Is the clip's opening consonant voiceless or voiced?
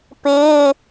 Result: voiceless